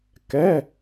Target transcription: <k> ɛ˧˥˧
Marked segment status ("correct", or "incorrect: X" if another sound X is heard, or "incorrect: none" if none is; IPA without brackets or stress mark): correct